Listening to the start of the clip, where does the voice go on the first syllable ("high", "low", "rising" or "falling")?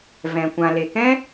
low